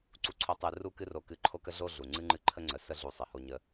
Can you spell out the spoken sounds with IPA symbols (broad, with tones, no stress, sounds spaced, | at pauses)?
ǀ u˧ ǀʰ o˧ tˤ ɨ˧ r u˦ k ɨ˦ r o˧ k ɨ˧ ǃʰ o˦ k ə˦ ɮ o˦ ɮ u˨ ŋ͡ǀ ɨ˦ ŋ͡ǃ ɨ˦˨ ǃʰ ə˦ ŋ͡ǀ ə˨˦ s ə˦ ɮ u˧ sˤ ɨ˨ h o˦ ɲ ə˦